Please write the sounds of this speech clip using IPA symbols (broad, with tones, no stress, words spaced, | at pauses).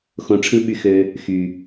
xõ˦ʈ͡ʂʰɯ˥ɓy˦xø˦ | xy˨